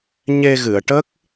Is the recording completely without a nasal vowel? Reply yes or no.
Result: yes